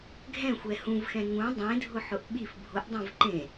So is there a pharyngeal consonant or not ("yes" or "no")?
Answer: yes